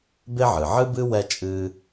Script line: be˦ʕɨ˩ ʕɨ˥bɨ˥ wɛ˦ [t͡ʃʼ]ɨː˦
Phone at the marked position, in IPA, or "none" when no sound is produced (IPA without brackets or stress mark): t͡ʃʼ